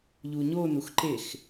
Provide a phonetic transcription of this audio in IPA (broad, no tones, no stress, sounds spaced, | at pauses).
ʎ u ɲ o n u x ǃ e x